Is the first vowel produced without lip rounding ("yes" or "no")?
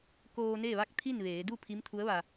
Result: no